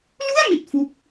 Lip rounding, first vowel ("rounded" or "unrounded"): rounded